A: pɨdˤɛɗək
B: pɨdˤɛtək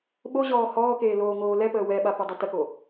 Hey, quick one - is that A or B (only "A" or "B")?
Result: B